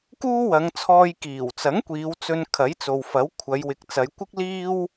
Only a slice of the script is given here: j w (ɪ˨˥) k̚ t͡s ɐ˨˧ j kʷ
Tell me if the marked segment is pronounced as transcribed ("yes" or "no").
no